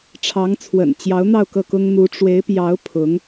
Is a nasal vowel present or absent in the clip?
absent